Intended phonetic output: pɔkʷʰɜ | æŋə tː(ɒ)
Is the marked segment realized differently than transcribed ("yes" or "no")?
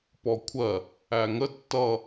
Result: yes